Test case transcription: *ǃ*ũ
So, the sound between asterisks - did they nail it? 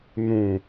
no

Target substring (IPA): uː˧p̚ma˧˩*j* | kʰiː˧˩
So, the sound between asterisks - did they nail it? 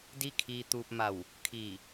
no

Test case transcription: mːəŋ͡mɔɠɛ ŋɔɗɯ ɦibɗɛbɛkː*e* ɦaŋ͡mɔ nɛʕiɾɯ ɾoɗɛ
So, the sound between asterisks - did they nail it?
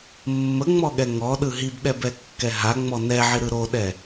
no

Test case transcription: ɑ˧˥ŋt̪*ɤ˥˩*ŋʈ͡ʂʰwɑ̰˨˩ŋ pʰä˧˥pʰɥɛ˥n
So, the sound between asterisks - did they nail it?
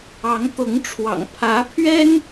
no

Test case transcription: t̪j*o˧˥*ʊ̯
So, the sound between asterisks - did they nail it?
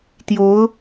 yes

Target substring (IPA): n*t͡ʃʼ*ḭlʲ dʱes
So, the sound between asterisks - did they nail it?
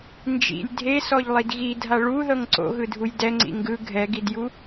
no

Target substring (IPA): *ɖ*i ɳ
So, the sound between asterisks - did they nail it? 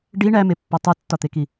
yes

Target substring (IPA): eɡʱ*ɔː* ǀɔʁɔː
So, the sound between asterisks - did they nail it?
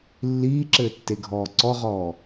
yes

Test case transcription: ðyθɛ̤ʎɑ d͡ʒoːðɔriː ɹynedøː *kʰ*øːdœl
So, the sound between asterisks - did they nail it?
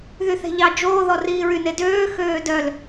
no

